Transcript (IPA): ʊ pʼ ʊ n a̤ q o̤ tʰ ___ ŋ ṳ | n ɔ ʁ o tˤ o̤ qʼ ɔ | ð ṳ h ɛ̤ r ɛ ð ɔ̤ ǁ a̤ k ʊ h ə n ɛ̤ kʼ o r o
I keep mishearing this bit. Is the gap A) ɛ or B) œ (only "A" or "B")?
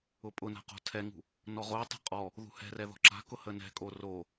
A